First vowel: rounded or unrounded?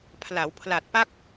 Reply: unrounded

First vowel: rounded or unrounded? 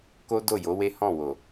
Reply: rounded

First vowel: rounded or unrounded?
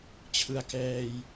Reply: unrounded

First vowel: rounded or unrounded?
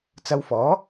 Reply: unrounded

